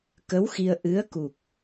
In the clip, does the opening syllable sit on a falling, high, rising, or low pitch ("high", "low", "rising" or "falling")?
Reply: rising